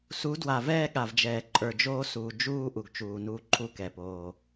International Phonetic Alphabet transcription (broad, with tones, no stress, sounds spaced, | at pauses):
s u˨˦ d w a˨ v ɛː˦ ɠ a˨ v d͡ʒ ɛː˨ ǃʼ ə˞˨ d͡ʒ oː˦ s uː˨ d͡ʒ uː˦ ʔ u˨ ɡ t͡ʃ uː˨ n uː˦ ǃʰ u˦ k ɛ˨ p oː˦